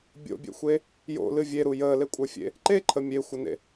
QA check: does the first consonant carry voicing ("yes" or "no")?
yes